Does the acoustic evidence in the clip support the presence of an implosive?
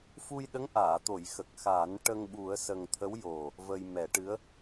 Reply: yes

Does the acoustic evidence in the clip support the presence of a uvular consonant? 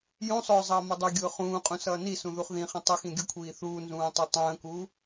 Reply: yes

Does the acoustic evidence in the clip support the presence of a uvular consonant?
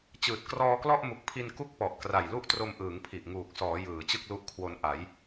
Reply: no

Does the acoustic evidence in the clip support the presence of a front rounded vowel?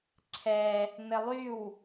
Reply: yes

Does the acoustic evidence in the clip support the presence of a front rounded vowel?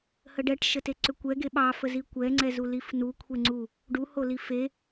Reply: yes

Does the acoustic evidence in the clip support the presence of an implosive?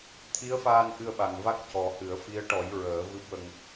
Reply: yes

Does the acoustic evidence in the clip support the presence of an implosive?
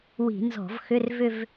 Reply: no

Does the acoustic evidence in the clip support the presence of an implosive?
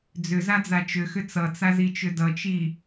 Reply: no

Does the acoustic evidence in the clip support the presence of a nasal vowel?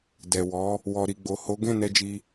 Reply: yes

